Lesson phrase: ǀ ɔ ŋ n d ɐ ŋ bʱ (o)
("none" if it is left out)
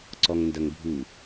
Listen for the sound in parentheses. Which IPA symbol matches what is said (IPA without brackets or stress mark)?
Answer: u